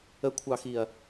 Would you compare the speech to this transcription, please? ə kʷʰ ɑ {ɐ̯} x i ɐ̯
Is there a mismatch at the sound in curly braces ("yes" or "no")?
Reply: yes